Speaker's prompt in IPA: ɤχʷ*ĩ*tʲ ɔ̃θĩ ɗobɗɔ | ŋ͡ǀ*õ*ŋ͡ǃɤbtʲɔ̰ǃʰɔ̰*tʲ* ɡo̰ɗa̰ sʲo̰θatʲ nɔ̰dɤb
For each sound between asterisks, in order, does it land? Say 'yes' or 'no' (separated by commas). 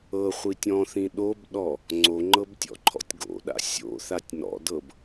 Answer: no, no, yes